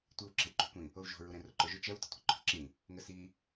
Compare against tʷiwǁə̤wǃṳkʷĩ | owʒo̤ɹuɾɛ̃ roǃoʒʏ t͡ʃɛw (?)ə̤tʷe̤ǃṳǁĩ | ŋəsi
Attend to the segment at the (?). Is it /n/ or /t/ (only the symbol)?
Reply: t